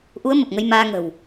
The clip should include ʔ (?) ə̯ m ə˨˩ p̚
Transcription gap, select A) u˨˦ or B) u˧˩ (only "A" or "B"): A